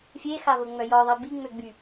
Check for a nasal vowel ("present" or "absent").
absent